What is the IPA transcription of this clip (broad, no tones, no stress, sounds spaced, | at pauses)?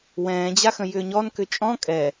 w ɛ̃ː d͡ʑ a x ə̃ j ʏː ɲ ɔ n k ʏ t͡ʃʼ ɔ̃ kʼ ɛ